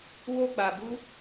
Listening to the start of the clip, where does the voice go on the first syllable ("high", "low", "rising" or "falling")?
high